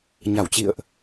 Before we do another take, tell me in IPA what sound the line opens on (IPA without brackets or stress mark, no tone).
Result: ɲ